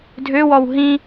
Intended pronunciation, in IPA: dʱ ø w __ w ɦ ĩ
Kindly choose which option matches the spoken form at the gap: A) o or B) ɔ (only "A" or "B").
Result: B